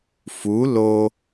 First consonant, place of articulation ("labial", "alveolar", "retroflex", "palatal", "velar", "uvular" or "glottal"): labial